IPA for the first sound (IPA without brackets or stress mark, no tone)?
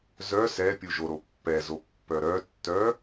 z